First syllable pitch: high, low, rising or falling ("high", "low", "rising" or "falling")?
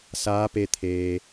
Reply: rising